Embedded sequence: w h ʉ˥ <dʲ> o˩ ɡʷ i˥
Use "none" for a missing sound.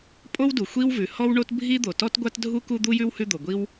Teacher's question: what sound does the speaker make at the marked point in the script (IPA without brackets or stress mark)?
d̪